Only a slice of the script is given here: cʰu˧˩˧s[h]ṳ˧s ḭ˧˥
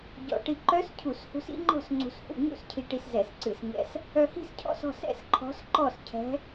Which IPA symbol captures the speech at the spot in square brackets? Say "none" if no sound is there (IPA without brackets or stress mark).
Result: h